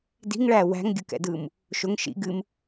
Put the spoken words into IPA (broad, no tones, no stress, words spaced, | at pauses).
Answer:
di̤ŋɭæ wæ̤ŋɡʲɯkɛ̰dɯːm | ʃʊŋ ʃḭ ɡɨm